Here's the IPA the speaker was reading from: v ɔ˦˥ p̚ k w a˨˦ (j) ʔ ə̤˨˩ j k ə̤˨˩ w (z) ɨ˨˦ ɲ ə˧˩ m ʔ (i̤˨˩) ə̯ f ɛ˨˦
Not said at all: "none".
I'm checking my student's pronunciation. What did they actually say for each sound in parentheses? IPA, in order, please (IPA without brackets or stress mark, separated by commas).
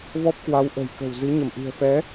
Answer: w, z, i̤˨˩